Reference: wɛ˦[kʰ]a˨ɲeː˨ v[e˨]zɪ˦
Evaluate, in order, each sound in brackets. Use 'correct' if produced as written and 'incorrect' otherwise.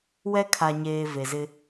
correct, correct

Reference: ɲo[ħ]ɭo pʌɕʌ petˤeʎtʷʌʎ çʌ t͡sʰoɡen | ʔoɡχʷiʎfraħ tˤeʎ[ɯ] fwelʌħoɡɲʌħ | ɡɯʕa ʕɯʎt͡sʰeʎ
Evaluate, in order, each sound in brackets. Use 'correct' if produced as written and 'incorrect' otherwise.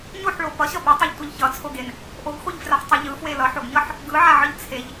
correct, correct

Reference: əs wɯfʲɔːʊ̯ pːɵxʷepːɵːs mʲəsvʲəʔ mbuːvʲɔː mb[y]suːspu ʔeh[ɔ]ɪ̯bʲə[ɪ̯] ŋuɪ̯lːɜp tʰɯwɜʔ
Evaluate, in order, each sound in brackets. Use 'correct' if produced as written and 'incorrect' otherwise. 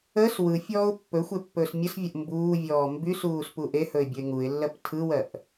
correct, incorrect, correct

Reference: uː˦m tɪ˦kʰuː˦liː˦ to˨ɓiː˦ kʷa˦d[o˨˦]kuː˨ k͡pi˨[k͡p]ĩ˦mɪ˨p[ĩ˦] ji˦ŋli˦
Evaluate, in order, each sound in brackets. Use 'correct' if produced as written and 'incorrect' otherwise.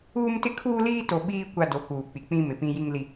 correct, correct, correct

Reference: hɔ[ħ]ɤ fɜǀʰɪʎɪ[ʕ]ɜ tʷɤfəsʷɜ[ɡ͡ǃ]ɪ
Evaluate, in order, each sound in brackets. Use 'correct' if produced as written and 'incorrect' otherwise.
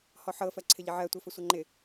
correct, correct, incorrect

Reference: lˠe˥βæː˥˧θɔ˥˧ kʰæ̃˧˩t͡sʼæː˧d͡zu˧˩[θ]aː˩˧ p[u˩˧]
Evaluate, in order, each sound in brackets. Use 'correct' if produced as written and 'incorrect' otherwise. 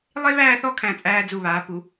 incorrect, correct

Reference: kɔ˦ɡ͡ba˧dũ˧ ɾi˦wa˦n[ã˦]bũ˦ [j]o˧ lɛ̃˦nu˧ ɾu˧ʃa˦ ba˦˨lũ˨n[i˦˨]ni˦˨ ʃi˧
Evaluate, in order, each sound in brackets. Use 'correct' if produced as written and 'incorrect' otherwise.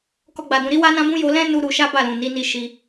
correct, correct, incorrect

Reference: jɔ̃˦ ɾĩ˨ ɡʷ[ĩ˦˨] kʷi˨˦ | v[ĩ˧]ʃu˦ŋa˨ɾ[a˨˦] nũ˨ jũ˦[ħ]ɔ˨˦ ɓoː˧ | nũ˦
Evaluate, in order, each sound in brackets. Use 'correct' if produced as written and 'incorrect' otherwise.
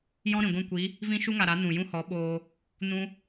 correct, incorrect, correct, incorrect

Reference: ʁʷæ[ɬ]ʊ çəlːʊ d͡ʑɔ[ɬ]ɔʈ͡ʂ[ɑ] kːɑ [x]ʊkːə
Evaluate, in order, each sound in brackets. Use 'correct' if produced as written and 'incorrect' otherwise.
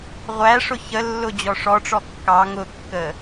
incorrect, incorrect, incorrect, incorrect

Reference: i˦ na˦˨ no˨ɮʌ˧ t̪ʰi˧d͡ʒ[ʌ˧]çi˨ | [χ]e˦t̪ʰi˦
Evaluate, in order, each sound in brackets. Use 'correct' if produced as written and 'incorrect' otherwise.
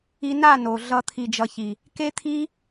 correct, incorrect

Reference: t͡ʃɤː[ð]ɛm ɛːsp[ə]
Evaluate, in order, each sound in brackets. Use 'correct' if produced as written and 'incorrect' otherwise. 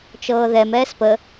correct, correct

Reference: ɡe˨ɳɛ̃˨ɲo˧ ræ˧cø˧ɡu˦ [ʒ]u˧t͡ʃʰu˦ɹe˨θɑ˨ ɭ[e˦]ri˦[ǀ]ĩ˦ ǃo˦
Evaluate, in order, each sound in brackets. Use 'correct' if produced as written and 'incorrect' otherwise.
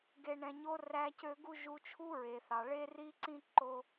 correct, correct, correct

